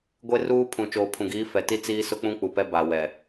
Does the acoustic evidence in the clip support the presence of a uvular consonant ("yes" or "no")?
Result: no